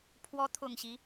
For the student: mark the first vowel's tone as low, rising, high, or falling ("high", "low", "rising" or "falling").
rising